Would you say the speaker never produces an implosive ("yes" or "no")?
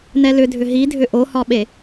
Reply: no